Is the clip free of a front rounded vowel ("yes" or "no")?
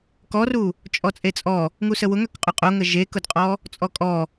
no